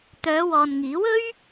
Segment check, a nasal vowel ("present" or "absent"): absent